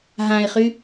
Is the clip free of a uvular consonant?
no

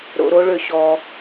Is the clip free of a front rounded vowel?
no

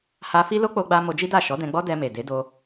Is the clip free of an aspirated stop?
yes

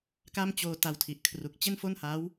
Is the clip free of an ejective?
yes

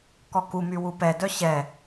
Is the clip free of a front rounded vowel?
no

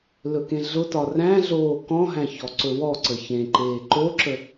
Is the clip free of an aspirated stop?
yes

